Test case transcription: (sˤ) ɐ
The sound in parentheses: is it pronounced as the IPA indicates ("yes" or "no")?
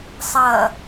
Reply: yes